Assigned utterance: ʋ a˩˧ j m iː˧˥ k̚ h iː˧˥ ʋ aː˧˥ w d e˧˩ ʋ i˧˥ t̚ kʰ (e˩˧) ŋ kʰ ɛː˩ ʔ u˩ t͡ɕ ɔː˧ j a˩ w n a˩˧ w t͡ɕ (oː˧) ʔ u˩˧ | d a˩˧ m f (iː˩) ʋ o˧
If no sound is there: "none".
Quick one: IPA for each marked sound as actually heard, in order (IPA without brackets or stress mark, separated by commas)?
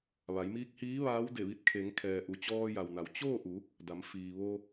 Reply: e˩˧, oː˥˨, iː˩